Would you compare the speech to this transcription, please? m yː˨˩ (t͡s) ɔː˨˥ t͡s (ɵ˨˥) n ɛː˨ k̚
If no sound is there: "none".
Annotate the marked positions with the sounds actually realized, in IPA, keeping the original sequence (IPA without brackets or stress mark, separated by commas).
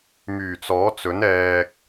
t͡s, ɵ˨˥